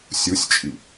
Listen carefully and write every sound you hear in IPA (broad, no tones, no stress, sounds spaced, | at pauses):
sʲ u sʲ t͡ʃʼ i